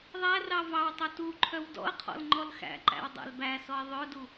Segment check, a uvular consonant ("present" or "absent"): present